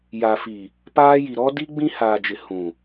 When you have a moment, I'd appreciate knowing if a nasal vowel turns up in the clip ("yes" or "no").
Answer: yes